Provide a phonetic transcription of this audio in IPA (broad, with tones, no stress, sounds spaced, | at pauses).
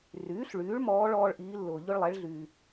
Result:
r yː˩˧ ɬ ɭ yː˩˧ ɭ m ɔː˧˥ ɭ ɔː˧ ɭ ʔ iː˩˧ lː ʊː˩ ʎ ʊ˧ ɭ lˠ ɛ˩˧ ɭ ɮ yː˩